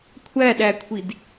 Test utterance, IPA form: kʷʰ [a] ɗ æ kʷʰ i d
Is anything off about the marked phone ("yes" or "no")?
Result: yes